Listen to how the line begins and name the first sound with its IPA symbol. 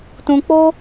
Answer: t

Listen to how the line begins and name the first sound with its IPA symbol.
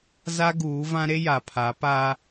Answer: z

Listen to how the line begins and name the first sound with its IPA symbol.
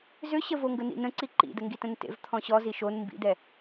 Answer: z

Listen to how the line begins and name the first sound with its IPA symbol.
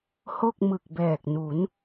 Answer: h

